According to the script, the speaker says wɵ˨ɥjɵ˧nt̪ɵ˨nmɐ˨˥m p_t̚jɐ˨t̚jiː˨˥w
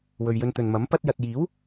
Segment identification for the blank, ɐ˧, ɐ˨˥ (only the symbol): ɐ˧